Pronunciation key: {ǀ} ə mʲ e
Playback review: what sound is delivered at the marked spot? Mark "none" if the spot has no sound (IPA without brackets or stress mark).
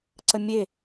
ǀ